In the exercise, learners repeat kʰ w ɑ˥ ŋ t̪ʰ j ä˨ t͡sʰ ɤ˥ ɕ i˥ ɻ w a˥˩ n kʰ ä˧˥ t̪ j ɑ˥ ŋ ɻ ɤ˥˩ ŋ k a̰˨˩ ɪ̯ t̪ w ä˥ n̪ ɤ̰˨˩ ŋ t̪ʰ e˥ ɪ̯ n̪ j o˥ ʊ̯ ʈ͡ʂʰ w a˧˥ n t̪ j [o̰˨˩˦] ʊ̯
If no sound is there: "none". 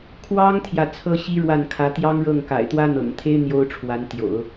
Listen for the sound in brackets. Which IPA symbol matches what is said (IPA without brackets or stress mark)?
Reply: o̰˨˩˦